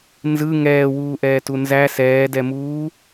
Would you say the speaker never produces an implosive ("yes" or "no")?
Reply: yes